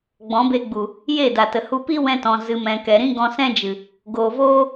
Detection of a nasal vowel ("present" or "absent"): present